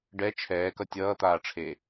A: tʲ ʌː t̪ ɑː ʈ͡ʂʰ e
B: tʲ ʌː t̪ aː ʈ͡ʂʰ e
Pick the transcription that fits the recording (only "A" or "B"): B